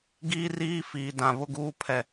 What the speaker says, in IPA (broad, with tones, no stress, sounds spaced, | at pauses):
ɡ iː˦ r iː˦ f iː˨ d ã˨ β ʊ˦ ɡ uː˦ pʰ ɛ˦˨